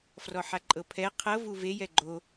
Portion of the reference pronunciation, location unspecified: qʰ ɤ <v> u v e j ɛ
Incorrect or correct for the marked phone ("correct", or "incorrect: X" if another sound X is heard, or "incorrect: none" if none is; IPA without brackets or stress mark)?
correct